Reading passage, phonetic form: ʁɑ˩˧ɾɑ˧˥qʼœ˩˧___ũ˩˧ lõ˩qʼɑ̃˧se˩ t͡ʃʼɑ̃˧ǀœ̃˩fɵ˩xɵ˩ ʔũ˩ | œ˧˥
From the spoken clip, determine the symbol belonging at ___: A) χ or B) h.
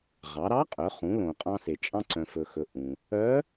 A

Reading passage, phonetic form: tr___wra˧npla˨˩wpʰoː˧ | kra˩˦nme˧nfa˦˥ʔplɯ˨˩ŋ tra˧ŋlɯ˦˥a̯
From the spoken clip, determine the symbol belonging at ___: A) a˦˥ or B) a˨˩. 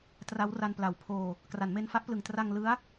A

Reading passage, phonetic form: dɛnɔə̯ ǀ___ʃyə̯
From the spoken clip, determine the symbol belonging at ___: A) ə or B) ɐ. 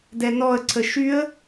A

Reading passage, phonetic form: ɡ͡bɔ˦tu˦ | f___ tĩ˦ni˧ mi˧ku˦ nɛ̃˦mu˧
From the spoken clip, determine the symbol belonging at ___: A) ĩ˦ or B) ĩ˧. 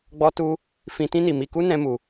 A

